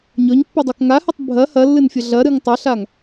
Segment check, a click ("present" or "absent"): absent